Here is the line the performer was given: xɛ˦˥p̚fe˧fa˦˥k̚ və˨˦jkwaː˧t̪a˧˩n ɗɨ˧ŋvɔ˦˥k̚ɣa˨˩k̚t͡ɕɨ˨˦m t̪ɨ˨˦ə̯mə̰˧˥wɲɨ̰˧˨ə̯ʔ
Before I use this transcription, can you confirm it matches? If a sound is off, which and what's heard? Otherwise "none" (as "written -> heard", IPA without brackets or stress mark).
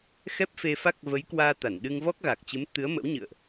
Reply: none